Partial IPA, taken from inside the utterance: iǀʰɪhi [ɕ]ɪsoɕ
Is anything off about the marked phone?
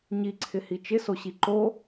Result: yes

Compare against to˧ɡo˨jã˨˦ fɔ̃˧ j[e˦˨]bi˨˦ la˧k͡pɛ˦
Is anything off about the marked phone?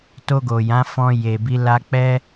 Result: yes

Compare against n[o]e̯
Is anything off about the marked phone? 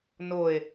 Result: no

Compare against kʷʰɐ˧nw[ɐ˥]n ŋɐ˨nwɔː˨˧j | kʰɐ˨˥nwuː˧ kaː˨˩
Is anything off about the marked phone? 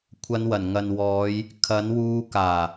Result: yes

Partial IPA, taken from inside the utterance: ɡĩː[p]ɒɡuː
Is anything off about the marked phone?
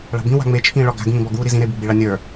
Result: yes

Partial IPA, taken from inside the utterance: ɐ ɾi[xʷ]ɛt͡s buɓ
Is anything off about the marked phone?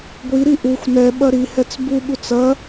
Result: yes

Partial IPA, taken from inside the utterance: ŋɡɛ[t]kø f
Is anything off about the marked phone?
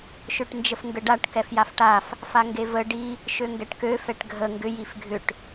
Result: yes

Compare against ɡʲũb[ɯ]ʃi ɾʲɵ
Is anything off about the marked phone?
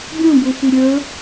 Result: yes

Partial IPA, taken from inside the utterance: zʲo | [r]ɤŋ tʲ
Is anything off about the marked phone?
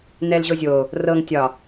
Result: no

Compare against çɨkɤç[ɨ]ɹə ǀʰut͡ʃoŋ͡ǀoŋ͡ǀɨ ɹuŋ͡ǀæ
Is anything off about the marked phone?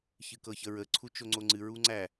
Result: yes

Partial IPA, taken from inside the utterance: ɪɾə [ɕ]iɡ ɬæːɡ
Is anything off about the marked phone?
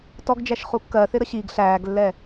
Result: no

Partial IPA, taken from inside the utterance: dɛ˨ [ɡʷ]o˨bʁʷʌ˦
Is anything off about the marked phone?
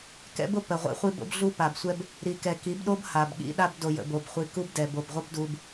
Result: yes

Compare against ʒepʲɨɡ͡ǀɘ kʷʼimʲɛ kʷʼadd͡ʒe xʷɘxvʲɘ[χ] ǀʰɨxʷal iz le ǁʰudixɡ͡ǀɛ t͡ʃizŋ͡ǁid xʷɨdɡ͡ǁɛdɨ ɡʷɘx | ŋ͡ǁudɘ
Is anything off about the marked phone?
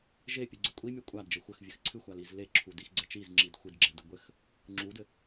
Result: yes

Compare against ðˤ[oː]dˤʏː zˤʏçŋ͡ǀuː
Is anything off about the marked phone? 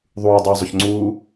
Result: yes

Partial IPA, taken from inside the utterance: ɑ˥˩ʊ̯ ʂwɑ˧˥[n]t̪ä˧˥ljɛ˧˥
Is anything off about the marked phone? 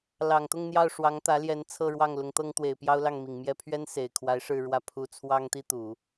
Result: yes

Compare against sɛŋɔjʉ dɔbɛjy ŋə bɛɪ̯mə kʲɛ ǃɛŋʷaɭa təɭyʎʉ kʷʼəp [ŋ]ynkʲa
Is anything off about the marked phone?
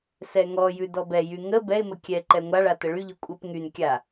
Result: no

